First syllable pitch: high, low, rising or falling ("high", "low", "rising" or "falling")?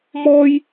high